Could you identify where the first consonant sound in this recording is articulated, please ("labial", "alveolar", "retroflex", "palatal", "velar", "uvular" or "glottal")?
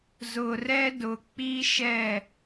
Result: alveolar